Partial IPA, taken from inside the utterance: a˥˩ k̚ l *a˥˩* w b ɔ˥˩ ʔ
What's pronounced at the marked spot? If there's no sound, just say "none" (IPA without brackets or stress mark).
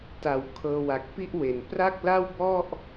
a˥˩